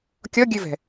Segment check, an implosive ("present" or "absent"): absent